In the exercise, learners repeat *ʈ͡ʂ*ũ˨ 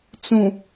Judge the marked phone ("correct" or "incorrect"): incorrect